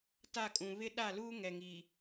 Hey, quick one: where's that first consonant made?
tongue tip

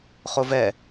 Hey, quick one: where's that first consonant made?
uvula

